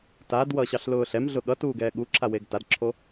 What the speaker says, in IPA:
t a d w ʌ ɕ ɑ ɬ l ʊː ɬ ɛ m ɮ ʊ ɠ ʌ t uː ɡ ɛː ɠ u ǁʰ a w e ɡ t a d ǁʰ o

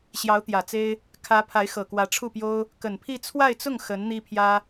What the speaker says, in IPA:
ɕ j ɑ˧˥ ʊ̯ t̪ j ä˨˩ t͡s e˥ ɪ̯ | kʰ ä˧˥ pʰ a˧˥ ɪ̯ x ɤ˨˩ k w ä˧˥ ʈ͡ʂʰ u˥˩ p j o˥ ʊ̯ | k ə˨˩ n pʰ i˥˧ t͡sʰ w a˥˧ ɪ̯ t͡s ʊ˥˩ ŋ x ə˧˥ n n̪ i˥ pʰ j ä˥

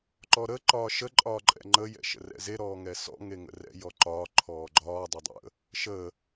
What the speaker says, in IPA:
ǃ ɔ ɾ ə ǃ ɒː ʃ ə ǃʼ ɒː ǃʼ ɛ̰ ŋ͡ǃ ə j ɛ̰ ʃ ə̰ r ɛ̰ z e ɾ ɔː ŋ ɛ s ɔ̰ ŋ e ŋ ə̰ r ɛ̰ j ɔ ǃ ɒː ǃʰ ɔː ɡ͡ǃ ɒː dˤ e dˤ ə̰ | ʃ ə

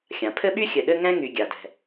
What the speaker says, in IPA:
xʲ ã˩ pʰ ɘ˥ ɓ y˥ xʲ ɘ˨ ɗ ɘ˥ ŋ ɛ̃˥ ŋ y˨ ɡʲ a˩ d ɛ̤˩

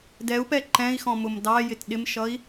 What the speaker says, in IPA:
d ɛ u̯ p ɛ ǃ ɛ̃ i̯ x ɔ̃ m ʊ m d ɑ j ɪ t ɗ ɪ m ʃ ʌ i̯

